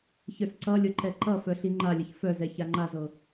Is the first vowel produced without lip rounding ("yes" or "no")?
yes